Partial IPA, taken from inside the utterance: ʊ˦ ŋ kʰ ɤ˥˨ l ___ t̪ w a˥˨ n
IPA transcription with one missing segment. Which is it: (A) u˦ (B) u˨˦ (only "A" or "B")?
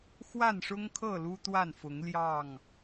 A